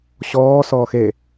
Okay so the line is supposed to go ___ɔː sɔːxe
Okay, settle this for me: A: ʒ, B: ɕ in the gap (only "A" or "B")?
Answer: B